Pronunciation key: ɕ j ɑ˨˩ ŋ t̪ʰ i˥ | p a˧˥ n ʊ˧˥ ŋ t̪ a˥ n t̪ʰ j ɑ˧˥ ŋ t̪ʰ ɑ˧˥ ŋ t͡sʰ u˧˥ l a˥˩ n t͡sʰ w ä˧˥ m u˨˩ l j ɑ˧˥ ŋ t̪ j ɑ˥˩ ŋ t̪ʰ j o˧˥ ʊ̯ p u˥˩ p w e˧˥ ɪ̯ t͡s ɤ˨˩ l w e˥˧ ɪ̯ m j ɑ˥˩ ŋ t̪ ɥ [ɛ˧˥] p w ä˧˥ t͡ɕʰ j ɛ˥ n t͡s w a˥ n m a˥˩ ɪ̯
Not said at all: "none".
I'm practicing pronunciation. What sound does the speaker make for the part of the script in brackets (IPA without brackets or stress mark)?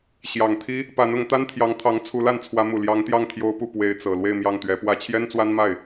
ɛ˧˥